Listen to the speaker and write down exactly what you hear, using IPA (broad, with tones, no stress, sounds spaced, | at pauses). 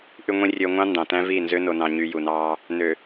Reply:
ʔ y˨ ŋʷ ĩ˨ rʲ ø˨ ŋʷ ɑ̃˦ n d ɑ̃˨ t æ̃˦ v i˦˨ n z ø˦ n o˨ n ɑ̃˨ ɲ y˨ j u˨ n ɑː˦ | n ø˨